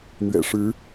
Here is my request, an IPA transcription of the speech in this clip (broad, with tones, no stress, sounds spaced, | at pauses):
n̪ ɥ ɛ̰˨˩ ʂ ɻ̩˧˥